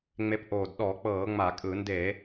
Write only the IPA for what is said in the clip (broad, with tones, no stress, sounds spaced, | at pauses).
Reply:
ŋ͡m e˨˦ p ʔ oː˨˩ d ɗ ɔ˧˩˧ k͡p ɤː˧˩˧ ŋ͡m a˧˩˧ kʼ ɯ˧˩˧ n d e˧˩˧